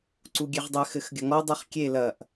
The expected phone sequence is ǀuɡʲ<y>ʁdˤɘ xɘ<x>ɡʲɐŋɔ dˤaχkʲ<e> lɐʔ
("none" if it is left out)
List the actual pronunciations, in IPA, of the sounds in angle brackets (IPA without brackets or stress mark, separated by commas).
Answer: e, x, e